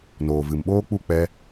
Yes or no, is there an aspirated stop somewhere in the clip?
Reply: no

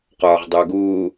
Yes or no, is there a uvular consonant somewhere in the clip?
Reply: yes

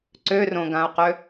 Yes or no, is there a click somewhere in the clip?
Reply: yes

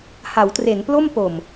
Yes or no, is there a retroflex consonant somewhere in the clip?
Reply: no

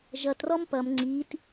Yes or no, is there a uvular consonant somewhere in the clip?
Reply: no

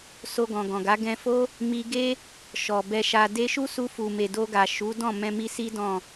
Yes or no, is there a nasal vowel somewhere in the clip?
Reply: yes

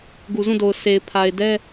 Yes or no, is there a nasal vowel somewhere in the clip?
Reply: yes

